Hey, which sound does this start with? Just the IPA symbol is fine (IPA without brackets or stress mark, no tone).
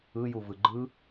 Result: ɯ